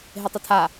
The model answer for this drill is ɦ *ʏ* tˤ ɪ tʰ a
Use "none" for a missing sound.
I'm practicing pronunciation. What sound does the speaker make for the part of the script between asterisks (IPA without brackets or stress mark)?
ɪ